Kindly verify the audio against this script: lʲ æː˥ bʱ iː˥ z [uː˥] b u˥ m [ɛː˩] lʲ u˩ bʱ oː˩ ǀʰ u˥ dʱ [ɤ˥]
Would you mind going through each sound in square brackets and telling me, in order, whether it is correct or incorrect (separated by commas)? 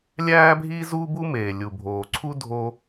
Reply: correct, incorrect, incorrect